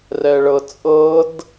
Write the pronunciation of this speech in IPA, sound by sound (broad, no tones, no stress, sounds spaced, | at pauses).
r ɛ ɭ ɤ t͡sʼ ɤ d